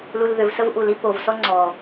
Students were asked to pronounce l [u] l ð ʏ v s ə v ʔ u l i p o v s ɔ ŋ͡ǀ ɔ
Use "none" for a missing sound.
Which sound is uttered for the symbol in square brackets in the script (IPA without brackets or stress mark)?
u